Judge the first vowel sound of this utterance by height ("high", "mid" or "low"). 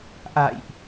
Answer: low